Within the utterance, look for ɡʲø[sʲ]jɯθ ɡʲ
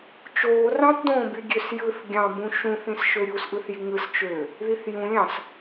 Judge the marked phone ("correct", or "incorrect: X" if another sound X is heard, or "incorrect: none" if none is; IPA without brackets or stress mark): incorrect: s